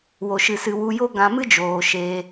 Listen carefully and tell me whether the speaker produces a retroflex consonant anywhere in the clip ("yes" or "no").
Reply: no